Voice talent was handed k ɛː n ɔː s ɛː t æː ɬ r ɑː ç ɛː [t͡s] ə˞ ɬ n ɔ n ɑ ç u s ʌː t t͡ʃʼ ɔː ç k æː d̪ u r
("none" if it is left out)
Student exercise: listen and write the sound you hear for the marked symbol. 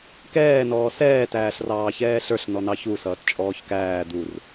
ɬ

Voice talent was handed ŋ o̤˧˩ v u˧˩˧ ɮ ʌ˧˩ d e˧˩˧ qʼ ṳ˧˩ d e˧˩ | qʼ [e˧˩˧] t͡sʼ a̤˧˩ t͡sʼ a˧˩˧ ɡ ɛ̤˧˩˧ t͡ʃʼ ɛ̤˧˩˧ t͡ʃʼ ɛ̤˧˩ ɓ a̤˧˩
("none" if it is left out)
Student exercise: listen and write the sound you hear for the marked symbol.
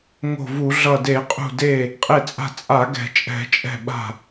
e˧˩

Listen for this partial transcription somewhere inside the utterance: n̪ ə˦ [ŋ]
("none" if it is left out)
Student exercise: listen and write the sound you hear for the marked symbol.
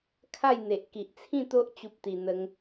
ŋ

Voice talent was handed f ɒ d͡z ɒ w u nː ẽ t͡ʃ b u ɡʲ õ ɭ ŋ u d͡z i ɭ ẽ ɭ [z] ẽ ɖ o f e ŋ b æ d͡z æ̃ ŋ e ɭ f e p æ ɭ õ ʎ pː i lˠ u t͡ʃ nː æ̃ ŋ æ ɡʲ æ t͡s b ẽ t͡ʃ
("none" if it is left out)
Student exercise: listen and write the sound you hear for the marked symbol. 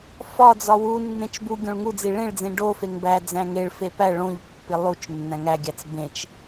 d͡z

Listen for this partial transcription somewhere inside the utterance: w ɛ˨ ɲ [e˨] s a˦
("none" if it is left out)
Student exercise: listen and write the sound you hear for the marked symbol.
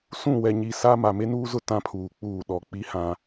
i˨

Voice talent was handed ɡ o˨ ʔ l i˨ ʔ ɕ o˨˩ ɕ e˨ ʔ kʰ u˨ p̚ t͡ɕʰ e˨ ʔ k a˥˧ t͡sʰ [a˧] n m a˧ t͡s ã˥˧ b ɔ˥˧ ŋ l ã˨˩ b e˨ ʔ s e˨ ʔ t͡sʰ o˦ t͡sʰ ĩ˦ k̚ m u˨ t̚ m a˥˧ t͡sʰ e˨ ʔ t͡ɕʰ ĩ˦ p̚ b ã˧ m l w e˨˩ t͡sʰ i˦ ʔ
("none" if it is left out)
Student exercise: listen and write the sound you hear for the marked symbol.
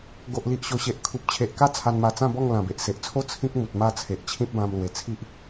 a˧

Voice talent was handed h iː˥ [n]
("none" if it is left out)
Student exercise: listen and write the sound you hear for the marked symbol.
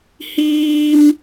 m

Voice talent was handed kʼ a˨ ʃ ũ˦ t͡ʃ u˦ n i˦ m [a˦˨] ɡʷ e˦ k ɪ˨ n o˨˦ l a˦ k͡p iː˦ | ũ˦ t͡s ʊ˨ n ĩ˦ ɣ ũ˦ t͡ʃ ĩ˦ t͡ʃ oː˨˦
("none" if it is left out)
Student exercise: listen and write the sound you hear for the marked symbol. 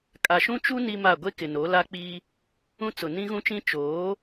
a˦˨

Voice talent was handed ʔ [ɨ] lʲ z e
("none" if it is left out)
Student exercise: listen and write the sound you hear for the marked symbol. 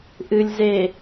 ɨ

